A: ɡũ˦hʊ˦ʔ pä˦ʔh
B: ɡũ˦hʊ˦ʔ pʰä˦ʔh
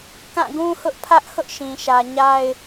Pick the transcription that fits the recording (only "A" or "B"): B